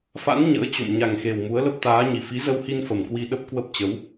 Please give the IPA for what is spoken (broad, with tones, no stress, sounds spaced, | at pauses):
f a̰˧˥ n ɲ ə̰ː˧˥ t͡ɕ o̰˧˨ m ɲ a˨˩ ŋ x e˨˩ w m u˨˦ ə̯ l ə˦˥ p̚ t̪ aː˨˦ ɲ i˨˩ f i˨˦ z ə˧ w h i˧ n f ə˨˩ m k w i˧ ɗ ə˦˥ p̚ k w ə˦˥ p̚ t͡ɕ ə˨˦ w